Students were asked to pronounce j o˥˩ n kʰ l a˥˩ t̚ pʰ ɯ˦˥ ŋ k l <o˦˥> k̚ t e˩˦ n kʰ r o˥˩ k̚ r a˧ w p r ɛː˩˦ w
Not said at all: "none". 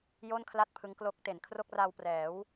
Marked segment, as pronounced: o˦˥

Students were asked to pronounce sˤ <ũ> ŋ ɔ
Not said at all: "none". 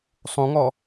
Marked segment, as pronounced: ũ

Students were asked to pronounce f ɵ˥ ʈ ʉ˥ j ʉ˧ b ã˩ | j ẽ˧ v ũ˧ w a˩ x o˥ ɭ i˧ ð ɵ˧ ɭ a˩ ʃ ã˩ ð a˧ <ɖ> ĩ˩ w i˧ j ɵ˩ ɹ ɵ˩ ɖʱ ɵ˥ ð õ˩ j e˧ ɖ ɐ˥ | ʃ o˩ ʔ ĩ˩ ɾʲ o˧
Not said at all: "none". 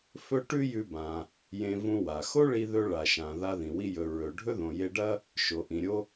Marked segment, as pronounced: ð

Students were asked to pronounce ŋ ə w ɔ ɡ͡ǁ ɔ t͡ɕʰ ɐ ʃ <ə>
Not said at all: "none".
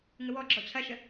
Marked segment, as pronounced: ə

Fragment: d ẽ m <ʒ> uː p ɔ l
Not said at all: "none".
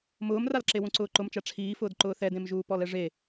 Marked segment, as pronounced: ʒ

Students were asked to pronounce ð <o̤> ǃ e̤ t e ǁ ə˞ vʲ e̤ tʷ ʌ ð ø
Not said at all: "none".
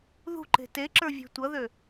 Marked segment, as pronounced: ṳ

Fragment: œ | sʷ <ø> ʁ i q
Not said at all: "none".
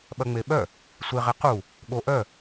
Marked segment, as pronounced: e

